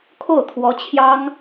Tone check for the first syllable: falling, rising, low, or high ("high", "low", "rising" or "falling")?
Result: falling